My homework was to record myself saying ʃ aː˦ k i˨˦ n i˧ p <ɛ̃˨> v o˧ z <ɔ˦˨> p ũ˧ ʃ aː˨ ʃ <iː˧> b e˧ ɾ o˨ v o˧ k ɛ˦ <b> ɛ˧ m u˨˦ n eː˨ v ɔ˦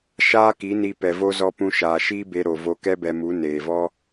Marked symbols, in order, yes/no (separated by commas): no, no, no, yes